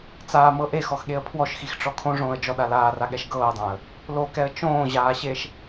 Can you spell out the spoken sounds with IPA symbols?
t͡s aː m ɤ ʔ e x ɔ x ɠ e ə̯ pʰ w ɔ ʃ x i x ʈ͡ʂ ɔ kʰ õ ʐ õː ə̯ d͡ʒ ɔ ɗ a l aː r a ɠ ɛ ʃ ɡ ɤː ə̯ dˤ ã ə̯ | l o k ɛ ə̯ t͡ʃ õː ʑ aː ɕ e ʃ

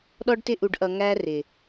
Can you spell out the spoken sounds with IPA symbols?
ɗ ɔ˦ ɖ t ɪ˦ ʔ u˧ ɖ ʔ ʌ˧ ŋ æ˦ r ɪ˨

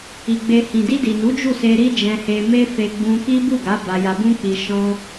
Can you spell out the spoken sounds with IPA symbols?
i˨ ɡ͡b e˨ h ĩ˨ d i˧ d i˨ n u˨˦ d͡ʒ u˦˨ s e˧ ɾ i˦ d͡ʒ ɛ̃˧ h e˧ m e˦ f e˧ ɡ͡b ũ˧ k i˦ b u˦˨ ɡ a˨˦ b a˧ j a˧ b ũ˦ k͡p i˧ ʃ ɔ̃˦

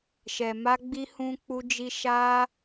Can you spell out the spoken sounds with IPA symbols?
ʃ ɛ˨ m a˧ ɡ͡b i˧ h ũ˧ k͡p u˧ d͡ʒ i˧ ʃ a˦

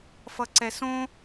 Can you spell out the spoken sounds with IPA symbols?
f ʌ ǀ ɛ s õ

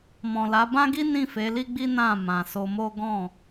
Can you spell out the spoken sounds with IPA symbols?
m ɔ̃˨ l a˨˦ b ã˦ ɡ i˦ n ĩ˦˨ f e˨˦ l i˦ ɡ͡b i˦ n ã˦˨ m ã˨ s o˧ m o˦ ɡ ɔ̃˦˨

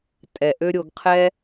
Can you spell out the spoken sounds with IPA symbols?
tʼ ɛ˨ ʔ ø˦ ɾʲ o˧ ɡ qʰ ɛ˦

